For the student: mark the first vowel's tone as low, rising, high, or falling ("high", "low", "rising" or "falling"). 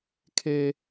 high